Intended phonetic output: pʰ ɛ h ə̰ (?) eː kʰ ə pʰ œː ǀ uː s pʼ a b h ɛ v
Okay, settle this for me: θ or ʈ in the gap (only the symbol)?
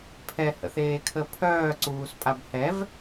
θ